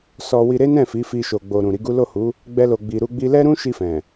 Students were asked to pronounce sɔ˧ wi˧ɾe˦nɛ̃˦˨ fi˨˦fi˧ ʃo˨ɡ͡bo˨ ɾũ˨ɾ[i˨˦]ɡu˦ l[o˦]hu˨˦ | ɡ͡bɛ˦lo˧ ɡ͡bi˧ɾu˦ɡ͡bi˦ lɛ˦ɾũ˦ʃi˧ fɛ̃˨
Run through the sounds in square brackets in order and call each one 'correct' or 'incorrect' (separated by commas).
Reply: correct, incorrect